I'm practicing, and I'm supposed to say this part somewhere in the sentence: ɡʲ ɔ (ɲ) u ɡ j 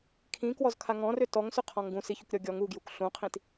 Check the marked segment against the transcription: incorrect: ŋ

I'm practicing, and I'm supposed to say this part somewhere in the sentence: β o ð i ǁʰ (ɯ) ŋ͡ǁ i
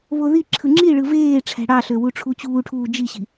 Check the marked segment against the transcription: correct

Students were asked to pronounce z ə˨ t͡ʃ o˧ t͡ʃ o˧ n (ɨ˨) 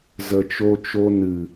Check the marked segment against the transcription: correct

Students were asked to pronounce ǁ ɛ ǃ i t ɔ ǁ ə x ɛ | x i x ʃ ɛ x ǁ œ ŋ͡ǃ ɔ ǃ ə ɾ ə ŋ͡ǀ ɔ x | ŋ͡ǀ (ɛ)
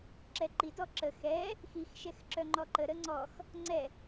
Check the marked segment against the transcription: correct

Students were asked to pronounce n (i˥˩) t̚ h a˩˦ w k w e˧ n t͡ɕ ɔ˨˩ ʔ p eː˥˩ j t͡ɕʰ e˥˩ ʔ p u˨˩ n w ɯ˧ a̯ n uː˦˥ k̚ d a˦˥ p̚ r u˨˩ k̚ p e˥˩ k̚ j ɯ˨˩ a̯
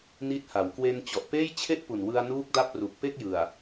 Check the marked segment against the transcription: incorrect: i˦˥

